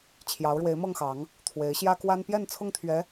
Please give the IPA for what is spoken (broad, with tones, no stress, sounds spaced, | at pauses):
t͡ɕʰ j ɑ˨˦ ʊ̯ ɻ w e˨˦ ɪ̯ m ɤ˥˨ ŋ x ɑ˨˦ ŋ | t̪ʰ w e˨˦ ɪ̯ ɕ j ä˦ k w a˦ n p j ɛ˥˨ n t͡sʰ ʊ˥˨ ŋ t̪ʰ ɥ ɛ˨˦